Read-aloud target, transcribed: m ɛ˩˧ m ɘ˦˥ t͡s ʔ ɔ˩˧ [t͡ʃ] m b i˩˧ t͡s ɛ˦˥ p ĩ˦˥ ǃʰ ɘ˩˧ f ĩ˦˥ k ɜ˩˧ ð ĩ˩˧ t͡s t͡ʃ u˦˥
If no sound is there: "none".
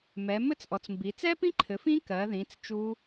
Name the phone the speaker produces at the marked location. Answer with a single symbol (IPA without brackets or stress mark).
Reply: t͡s